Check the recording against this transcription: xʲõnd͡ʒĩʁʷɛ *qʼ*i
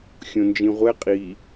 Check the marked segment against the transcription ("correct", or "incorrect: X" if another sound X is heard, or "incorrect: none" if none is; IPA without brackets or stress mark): correct